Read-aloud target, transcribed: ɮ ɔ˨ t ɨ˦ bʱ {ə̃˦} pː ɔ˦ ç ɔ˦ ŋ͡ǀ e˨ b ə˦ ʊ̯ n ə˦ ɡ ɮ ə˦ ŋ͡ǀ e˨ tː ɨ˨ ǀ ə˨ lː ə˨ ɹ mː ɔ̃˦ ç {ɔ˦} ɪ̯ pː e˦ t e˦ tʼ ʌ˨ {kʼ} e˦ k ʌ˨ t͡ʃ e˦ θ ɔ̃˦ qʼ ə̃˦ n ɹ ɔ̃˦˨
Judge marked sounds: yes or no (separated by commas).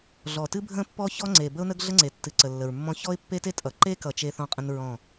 yes, yes, no